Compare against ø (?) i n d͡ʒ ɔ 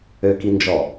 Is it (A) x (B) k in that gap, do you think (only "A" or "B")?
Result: B